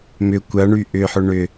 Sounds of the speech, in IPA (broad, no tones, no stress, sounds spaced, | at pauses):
m ʏ kʷ ɐ ɳ y ʔ ʏ ħ ʊ ɳ ʏ